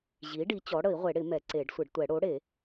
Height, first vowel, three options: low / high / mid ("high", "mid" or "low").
high